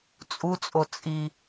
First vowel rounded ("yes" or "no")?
yes